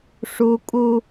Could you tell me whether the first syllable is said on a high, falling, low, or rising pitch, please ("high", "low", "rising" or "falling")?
high